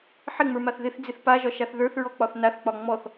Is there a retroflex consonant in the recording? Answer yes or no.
no